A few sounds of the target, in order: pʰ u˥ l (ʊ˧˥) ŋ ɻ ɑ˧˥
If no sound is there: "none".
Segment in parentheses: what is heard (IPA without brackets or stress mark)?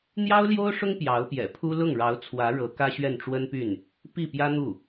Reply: ʊ˥˩